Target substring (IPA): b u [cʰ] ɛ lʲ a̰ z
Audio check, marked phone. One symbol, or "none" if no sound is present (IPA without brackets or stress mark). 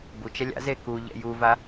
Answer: t͡ʃ